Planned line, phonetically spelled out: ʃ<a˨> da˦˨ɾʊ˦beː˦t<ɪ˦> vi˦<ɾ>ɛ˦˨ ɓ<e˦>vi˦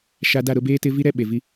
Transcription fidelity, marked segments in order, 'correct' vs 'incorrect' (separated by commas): incorrect, correct, correct, incorrect